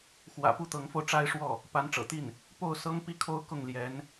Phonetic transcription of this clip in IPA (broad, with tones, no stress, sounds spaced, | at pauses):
x w ä̰˨˩ p u˥˩ t̪ ɤ˧˥ ŋ f o˧ ʊ̯ ʈ͡ʂ a˥ ɪ̯ ʂ w ɔ˥˩ | p a˧˥ n ʈ͡ʂ ɤ̰˨˩ t̪ i˥˩ n | p o˥˩ ʊ̯ s ɤ˥ ŋ p i˥˧ kʰ o˥˧ ʊ̯ k ʊ˥˩ ŋ l j ɛ˧˥ n